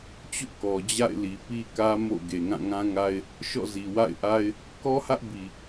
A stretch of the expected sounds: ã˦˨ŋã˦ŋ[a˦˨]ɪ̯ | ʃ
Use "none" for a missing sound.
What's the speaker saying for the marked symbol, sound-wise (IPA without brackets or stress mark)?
a˦